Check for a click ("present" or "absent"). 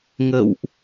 absent